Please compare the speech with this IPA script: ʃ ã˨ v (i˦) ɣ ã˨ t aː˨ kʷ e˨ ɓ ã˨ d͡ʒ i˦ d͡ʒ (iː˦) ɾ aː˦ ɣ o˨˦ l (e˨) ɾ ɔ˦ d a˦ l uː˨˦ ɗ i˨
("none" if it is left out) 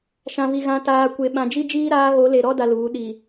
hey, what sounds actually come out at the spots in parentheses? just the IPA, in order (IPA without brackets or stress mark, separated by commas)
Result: i˨, iː˦, e˨